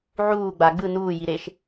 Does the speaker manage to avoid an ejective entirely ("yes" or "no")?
yes